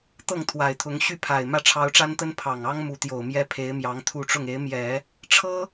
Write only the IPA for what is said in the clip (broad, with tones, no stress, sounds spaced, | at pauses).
t̪ ɤ˥˩ ŋ t̪ʰ w a˨˩ ɪ̯ t̪ʰ ʊ˧˥ ŋ ɕ y˥˩ pʰ a˨˩ ɪ̯ m ä˥˩ ʈ͡ʂʰ ɑ˧˥ ʊ̯ ʈ͡ʂ a˥ n t̪ ə˥ n pʰ ɑ˨˩ ŋ ɑ˥ ŋ m u˧˥ t̪ j o˨˩ ʊ̯ m j ɛ˥ pʰ e˧˥ ɪ̯ m j ɑ˧˥ ŋ t̪ʰ u˥˧ ʈ͡ʂ ʊ˥˩ ŋ e˧˥ ɪ̯ m j ɛ˨˩˦ | ʈ͡ʂʰ ɤ˥